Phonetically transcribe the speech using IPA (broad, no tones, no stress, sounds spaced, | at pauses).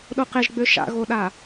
ɗ o q e ʒ ɡ͡b ø ʃ a̰ ɣ o ɗ a